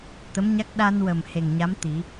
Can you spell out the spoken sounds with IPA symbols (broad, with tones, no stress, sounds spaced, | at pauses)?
t̪ ə˧˥ m ɲ a˦˥ k̚ ɗ a˧ n w ə˨˩ m h e˨˩ ŋ ɲ a˧˥ m t̪ i˨˩˦